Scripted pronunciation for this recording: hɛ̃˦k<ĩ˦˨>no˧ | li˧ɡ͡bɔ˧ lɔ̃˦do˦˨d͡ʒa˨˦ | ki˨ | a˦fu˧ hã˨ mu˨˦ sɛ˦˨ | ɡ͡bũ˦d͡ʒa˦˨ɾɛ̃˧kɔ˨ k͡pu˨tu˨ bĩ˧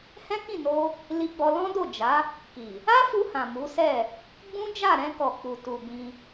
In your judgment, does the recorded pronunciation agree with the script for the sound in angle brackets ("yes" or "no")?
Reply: yes